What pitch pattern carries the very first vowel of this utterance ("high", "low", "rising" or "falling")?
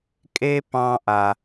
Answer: high